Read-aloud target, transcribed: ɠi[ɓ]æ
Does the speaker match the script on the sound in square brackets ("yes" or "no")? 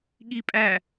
no